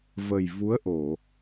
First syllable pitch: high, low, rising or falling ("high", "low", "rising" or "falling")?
low